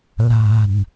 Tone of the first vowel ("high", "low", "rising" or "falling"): low